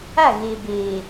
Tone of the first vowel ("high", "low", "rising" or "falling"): falling